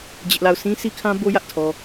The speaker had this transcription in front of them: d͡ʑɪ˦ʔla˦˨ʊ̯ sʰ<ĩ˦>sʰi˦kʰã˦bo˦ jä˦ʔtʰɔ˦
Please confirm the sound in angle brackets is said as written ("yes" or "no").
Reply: yes